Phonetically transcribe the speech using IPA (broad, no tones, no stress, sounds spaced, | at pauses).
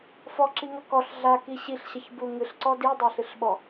f ɔ ǁ i ŋ ɐ k ɔ ɬ ɮ a k i ɕ i ɬ ɕ ɐ ç b u ŋ ɨ ɬ ǀ ɔ d i dˤ a ɬ ɨ ɬ ɓ ɔ